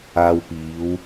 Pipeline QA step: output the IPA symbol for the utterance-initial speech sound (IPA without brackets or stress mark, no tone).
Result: aː